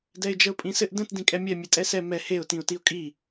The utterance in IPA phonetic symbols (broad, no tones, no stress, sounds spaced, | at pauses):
d ɛ ɪ̯ d͡ʒ ə ʊ̯ pʼ ĩ s ɘ ʔ d ə̃ t d ĩ kʼ ɛ mʲ ɛ mʲ ɛ tʼ ɛ s ɛ m ɛ h e ʊ̯ t ĩ ʊ̯ t i ʊ̯ kʼ i